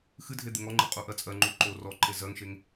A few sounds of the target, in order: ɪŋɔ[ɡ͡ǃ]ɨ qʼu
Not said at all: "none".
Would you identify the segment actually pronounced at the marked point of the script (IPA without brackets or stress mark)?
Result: ŋ͡ǃ